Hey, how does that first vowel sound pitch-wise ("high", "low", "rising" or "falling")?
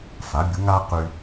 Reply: rising